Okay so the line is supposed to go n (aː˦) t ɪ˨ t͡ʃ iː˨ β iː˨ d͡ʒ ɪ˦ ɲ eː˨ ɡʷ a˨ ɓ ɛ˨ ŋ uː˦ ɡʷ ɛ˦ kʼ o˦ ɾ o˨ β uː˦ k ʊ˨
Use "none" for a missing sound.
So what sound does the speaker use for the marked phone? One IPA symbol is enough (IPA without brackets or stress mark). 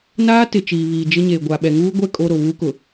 aː˦